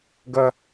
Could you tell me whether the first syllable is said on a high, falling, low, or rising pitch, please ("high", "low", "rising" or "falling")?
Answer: high